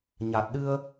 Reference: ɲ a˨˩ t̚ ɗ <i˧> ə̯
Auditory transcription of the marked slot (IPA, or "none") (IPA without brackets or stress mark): ɨ˧